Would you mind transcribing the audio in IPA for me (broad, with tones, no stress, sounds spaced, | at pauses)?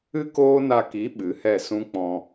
ɨ˦ k oː˦ n a˧ k i˨˦ ɓ ɨ˨˦ h ɛ˦˨ s ũ˦ k͡p ɔ̃˧